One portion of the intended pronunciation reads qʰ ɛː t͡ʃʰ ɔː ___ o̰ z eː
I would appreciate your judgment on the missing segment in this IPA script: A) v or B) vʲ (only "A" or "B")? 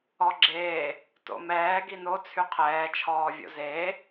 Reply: B